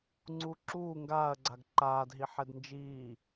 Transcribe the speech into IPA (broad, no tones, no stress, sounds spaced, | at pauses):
ŋ͡ǀ u ǁ uː ŋ ɡ aː ɐ̯ ɡ͡ǀ a ɡ ǃ aː d ɦ i ħ ɛ d n d͡ʒ iː